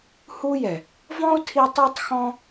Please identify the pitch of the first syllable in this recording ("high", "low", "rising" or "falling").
high